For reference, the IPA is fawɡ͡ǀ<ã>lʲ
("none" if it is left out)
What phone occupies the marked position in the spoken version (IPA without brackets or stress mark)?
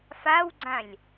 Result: ã